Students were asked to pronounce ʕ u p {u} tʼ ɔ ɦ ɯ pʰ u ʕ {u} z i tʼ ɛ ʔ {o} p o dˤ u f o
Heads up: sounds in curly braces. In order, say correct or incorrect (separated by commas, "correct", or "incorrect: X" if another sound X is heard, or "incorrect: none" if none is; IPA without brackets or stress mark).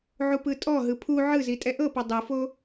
incorrect: ɯ, incorrect: ɯ, incorrect: ɤ